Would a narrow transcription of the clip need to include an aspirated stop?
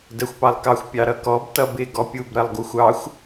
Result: no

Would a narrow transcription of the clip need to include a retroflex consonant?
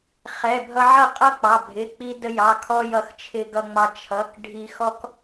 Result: yes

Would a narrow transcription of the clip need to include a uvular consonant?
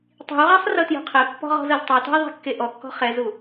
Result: yes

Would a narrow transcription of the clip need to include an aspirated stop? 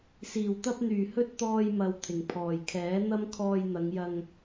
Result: yes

